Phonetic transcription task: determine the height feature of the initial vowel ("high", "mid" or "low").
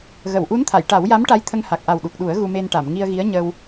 mid